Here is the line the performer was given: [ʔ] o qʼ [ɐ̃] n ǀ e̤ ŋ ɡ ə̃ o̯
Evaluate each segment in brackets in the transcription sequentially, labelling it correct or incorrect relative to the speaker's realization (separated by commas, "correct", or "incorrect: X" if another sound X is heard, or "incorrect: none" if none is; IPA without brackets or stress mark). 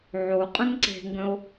incorrect: ʕ, incorrect: ə̃